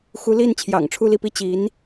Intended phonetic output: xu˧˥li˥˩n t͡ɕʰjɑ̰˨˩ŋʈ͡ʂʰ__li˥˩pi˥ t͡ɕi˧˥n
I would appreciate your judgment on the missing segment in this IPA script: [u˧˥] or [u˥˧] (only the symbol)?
u˥˧